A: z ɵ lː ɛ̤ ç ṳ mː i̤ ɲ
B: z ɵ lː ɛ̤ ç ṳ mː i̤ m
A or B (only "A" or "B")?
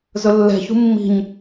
A